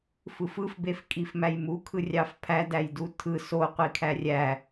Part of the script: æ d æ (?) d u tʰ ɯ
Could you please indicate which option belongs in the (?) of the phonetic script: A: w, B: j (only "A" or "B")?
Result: B